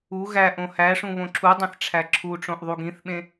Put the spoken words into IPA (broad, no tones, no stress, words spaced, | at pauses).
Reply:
u ɣæʔ õhæʂũ βõǁʰudˤẽθ ʈ͡ʂʰæǁʰuʈ͡ʂõʔ ðˤuɡĩθɓẽ